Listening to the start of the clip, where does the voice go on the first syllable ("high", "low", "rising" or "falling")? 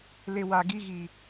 low